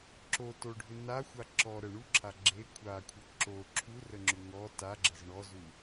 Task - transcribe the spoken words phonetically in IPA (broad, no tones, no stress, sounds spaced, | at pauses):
ǁ o t o ɖʱ ʏ n a xʷ a ǁ ɔ ɾ ə ɳ u ǁʰ a ɡ͡ǁ e kʷʰ a kʷʰ ə ǁ o ǁʰ u r ə ŋ͡ǁ ʏ ŋ ɔ t a ɡ͡ǁ ə z ɳ ɔ z u